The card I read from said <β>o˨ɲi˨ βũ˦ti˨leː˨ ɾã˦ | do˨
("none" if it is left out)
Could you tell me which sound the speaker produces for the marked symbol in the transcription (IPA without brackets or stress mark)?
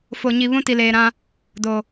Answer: f